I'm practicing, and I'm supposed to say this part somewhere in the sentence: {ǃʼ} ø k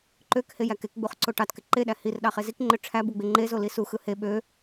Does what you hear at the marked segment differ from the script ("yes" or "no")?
yes